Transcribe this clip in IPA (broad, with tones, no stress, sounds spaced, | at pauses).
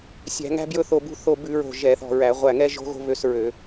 sʲ æ̤˧˩˧ ŋ æ̤˦ b j ɵ˦ θ o˧˩ b ṳ˦ θ o˧˩ b ʉ˧˩˧ ɹ o̤˧˩ ʒ ɛ˧˩˧ θ ɔ̤˧˩ ɹ æ˧˩˧ ʁʷ æ˧˩ ŋ ɛ˦ ʒ o̤˦ ɣ o̤˦ β ø˦ s ɹ ø˧˩˧